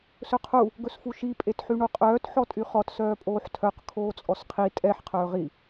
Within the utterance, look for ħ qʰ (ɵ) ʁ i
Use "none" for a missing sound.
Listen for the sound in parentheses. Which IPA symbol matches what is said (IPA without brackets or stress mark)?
ɵː